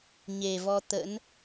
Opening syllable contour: low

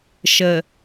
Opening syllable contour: low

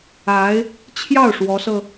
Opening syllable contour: rising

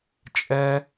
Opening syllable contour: high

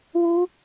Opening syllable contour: high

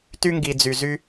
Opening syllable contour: high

